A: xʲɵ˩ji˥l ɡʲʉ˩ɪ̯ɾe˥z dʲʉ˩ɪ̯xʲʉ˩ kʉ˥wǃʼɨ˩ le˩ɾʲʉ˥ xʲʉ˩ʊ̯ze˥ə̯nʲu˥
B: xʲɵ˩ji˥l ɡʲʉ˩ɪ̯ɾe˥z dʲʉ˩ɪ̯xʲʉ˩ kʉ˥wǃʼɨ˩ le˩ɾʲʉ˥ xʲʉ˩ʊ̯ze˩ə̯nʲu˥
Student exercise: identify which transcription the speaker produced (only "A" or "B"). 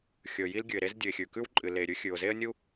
A